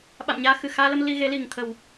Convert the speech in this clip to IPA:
ɓ a̰˧˨ m ɲ aː˧ x ɨ˧˩ x aː˧ l ə˧ m l i˧ ɣ e˨˦ l i˨˩ ŋ t̪ʰ ə˨˩ w

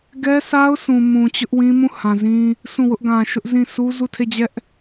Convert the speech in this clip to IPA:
ɡ ɛ˦ sʰ a˦ ʊ̯ sʰ ũ˨ m ũ˨ t͡ɕ ʊ˦ ʔ w ĩ˦ m ũ˦˨ h ã˨ z ĩ˦ | sʰ ũ˦˨ w ʊ˦ ʔ ɡ ã˨ ʃ ʊ˦ ʔ z ĩ˦˨ sʰ u˦ z u˦˨ tʰ e˦˨ d͡ʑ ɛ˦ ʔ

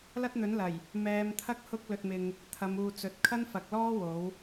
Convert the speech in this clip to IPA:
l ɐ˥ t̚ n̪ ɵ˨˥ n l ɐ˨˩ j | m ɛː˨˧ m t̪ʰ ɐ˥ k̚ h ʊ˧ k̚ l ɵ˧ t̚ m ɪ˧ ŋ | t̪ʰ ɐ˨˧ m uː˨ t͡s ɵ˨˥ t̚ kʰ ɐ˥ n f ɐ˨ k̚ l ɔː˥ w o˨˥ w

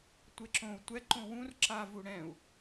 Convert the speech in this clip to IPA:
tʷ e ǁ õ u̯ tʷ ɛ ǃ õ w ũ r ǁ a v u ɽ ɛ̃ u̯

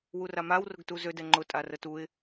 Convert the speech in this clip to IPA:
w u r a m a w r ʊ ɡ t u z ø d ɛ ŋ͡ǃ ʊ tʼ a r ə t u ɪ̯

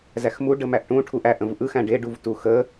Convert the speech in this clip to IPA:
z æ x m u ɖ ə m æ ʔ ʈ ũ ʈʰ u ʔ æ ʔ ə̃ v ʔ ɯ x æ̃ ɖ e ɖ u v t u x ə

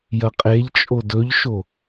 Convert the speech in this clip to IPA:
j ɐ qʼ e ʎ t͡ʃʼ o d ɵ ʎ ʃ o

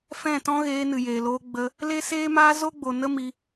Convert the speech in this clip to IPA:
f ɛ̃˦˨ t ɔ̃˦ ɣ eː˧ n ɨ˨ j eː˨ l oː˧ ɡ͡b ə˧ | l e˦ s eː˦ m aː˦ z o˦ ɡ͡b o˨ n ə˦ m i˧

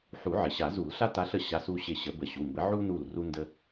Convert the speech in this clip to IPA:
ħ u˨˩˦ ʕ ɪ˩ ɕ a˨˩˦ z u˨˩˦ l ɬ a˥ t a˧˥ ɬ ə˩ ɕ a˧˥ s u˩˧˩ ɕ ɪ˦˨ ɕ ə˨˩˦ b ə˨˩˦ ɕ u˩˧˩ m b ə˧˥ ʕ u˥ n u˦˨ l r u˥ n d ə˥

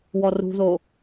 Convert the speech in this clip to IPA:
w ɔ r ṳ ð o

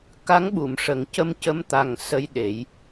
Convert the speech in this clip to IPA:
k a˧˥ ŋ ɓ u˨˩˨ m ʂ ə˨˩˦ ŋ c ə˧ m c ə˧ m t̪ a˨˩ ŋ s ə˧ j ɗ e˨˩˦ j

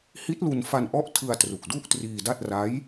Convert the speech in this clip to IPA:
h i˦˥ t̚ l u˧ n f a˧ n ʔ ɔ˦˥ ʔ tʰ ɯ˧ a̯ t r u˨˩ k̚ d u˥˩ ʔ t r iː˧ d a˥˩ t̚ r a˦˥ j

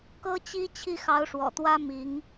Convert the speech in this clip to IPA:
k ɤ˥ t͡ɕ i˥ t͡ɕʰ i˥˩ x ɑ˧˥ ʊ̯ ʂ w ɔ̰˨˩ t̪ w ä˥ m i˧˥ ŋ

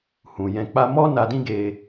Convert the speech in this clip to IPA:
h ũ˨ j ɛ̃˧ k͡p a˧ m ɔ˦ n a˧ d ĩ˦ ɡ e˧

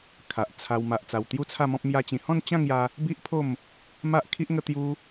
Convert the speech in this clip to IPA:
kʰ a˨ ʔ t͡sʰ a˧ w m a˨ ʔ t͡s a˨˩ w t̪ j u˥˧ t͡sʰ a˥˧ m ɔ̃˦ p̚ m j a˦ t͡ɕ ĩ˧ h ɔ̃˥˧ n t͡ɕ ã˥˧ ŋ j a˧ | b i˦ ʔ pʰ o˥˧ m | m a˦ ʔ kʰ i˦ ʔ ŋ ə˦ t̪ j u˦

